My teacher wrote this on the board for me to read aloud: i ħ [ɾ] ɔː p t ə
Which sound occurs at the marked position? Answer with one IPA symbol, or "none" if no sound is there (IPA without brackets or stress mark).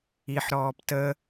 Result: ɾ